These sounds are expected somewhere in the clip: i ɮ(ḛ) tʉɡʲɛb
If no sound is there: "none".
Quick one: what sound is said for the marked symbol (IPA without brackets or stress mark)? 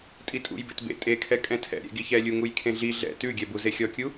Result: ɛ̰